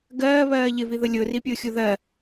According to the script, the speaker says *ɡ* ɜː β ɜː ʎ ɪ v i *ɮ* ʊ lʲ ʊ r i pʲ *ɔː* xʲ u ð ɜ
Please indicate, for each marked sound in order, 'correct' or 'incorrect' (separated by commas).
correct, incorrect, incorrect